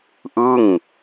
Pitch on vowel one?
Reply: falling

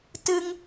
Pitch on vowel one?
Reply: high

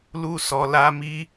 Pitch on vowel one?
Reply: high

